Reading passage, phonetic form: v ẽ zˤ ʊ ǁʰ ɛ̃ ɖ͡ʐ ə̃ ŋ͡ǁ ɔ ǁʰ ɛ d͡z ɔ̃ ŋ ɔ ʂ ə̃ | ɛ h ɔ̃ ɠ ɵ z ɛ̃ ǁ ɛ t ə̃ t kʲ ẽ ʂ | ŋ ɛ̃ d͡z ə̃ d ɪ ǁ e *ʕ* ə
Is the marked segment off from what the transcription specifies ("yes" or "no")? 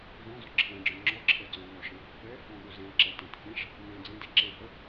yes